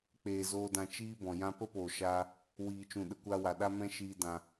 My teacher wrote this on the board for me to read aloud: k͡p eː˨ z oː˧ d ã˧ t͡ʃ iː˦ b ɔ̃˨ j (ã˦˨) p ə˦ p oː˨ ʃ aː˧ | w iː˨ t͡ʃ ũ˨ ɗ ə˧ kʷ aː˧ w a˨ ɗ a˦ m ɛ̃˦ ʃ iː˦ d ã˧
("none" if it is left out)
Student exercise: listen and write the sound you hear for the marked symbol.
ã˧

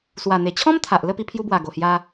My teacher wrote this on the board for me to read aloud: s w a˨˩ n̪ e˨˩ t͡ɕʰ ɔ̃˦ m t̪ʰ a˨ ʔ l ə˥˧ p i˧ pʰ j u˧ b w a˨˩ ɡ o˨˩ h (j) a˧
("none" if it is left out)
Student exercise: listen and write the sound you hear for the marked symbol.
j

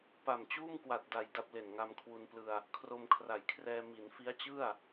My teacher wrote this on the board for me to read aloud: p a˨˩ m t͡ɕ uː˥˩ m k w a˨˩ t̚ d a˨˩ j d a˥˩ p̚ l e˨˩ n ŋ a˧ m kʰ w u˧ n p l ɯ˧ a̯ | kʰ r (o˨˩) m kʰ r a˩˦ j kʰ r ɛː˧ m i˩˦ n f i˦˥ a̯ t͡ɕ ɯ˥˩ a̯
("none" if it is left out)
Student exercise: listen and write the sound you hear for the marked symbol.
o˧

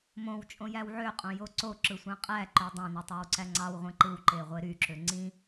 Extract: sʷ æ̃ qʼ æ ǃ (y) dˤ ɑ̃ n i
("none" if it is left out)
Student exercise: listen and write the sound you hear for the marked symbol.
ø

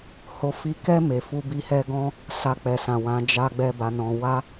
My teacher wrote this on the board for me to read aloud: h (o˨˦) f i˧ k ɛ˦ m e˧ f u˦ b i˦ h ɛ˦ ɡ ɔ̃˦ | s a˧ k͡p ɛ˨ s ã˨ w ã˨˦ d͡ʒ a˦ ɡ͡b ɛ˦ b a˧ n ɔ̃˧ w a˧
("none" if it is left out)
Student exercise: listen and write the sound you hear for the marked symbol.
o˧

